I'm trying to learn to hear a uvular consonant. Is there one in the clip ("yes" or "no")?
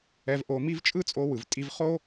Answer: yes